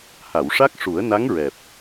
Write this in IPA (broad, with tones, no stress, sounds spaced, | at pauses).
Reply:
h a˨˩˨ w ʂ a˦˥ k̚ ʂ u˨˩˦ ə̯ n a˧˥ ŋ ɹ ɛ˨˩ p̚